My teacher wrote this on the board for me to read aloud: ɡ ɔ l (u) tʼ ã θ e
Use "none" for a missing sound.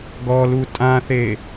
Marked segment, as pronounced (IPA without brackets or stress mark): u